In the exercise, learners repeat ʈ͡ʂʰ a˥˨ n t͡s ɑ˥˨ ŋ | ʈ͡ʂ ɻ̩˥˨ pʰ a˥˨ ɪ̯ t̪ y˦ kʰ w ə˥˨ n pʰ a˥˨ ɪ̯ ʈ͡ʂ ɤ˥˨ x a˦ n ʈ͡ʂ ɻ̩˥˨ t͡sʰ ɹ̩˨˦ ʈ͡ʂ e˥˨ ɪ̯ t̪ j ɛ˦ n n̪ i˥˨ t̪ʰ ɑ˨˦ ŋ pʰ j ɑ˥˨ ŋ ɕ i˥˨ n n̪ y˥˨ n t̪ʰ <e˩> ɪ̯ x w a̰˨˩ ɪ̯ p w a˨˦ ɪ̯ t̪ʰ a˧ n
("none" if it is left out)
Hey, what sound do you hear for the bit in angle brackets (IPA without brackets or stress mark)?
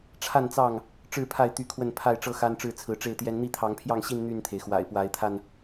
e˩